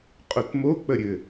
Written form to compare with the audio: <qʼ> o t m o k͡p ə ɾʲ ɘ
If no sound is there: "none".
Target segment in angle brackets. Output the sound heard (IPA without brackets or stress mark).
qʼ